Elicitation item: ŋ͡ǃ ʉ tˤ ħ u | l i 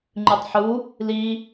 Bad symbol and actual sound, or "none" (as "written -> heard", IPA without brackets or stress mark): none